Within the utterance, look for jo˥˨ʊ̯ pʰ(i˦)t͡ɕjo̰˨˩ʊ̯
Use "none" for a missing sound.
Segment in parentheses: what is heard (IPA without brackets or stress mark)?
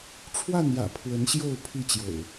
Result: i˥˨